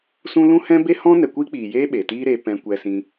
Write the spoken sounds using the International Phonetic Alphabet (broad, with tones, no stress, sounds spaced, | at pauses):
s ũ˦ l ũ˦ h ɛ̃˦ b e˦ h ɔ̃˦ n ɛ˨ kʷ iː˦ k͡p iː˨ j eː˦ ɓ eː˨ t iː˦ ɾ eː˧ p ɛ̃˧ kʷ ɛ˧ s ĩ˧